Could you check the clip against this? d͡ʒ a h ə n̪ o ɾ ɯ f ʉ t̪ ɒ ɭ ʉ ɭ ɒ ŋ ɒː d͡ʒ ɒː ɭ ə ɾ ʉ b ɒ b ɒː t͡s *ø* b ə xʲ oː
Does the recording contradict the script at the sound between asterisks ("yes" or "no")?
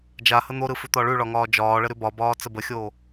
yes